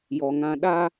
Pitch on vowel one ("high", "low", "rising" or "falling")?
low